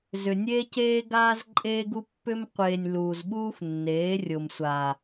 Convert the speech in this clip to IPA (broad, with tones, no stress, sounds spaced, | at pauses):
z ʏ˨ nʲ eː˦ c eː˦ ɡ aː˦ z ǃʼ eː˦ ɡ u˦ pː ʏ˦ m qʷ eː˨ nʲ l uː˨ z ɓ uː˦ f nː eː˨˦ rʲ o˨ m sʷ aː˨